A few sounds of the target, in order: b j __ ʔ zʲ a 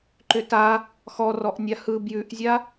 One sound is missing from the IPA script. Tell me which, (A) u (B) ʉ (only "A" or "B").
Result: B